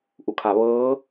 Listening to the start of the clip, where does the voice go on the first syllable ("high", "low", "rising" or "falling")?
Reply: low